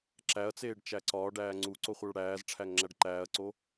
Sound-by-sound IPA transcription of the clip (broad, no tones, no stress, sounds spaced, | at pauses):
ǁ æ ɐ̯ t͡s eː ɖ t͡ʃ æ ǀ ɒː ɖ æː ŋ͡ǀ u ǀ o χʷ æ ɭ ɽ æː z ʈ͡ʂʰ æ ŋ ŋ͡ǁ æ ɖ ǃ æː ɐ̯ ǀ o